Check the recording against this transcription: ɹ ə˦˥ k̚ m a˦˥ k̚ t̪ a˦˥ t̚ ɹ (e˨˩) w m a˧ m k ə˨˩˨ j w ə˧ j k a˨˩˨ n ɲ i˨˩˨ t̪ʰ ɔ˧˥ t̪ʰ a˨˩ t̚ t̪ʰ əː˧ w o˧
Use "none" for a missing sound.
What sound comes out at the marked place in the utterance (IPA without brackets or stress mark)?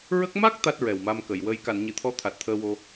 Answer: ɛ˨˩